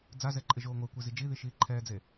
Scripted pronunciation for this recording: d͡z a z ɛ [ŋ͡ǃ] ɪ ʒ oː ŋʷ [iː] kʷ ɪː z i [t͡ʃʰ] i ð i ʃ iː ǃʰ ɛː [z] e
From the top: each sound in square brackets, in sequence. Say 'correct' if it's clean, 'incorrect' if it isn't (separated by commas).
incorrect, incorrect, incorrect, incorrect